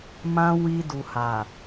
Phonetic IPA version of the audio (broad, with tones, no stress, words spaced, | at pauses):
mã˧ wi˧ du˨ha˨